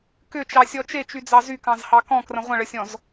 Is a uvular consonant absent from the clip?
no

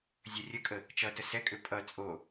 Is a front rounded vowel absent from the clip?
no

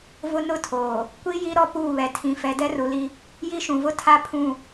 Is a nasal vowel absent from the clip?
no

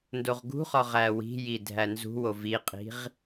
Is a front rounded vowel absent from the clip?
yes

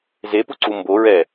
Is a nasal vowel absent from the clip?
yes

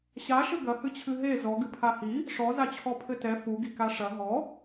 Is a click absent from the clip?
yes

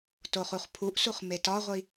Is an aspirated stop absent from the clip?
no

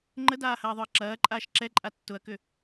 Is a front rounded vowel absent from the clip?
no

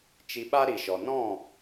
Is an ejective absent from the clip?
yes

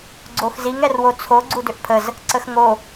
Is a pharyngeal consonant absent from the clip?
yes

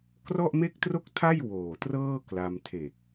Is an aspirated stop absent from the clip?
no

